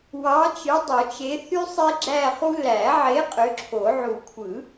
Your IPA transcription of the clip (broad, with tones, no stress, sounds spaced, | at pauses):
w ɑ˨˥ t͡ʃ ɯ˨˥ dˤ o˨˩˦ t͡ʃ e˨˥ θ y˥ sˤ e˥ ɡ͡ǁ æ˥˧ χ u˥ l æ˨˩˦ ʕ e˨˥ qʼ ø˨˥ ǁʰ o˨˩˦ ʕ u˨˩˦ kʷʰ ɯ˨˩˦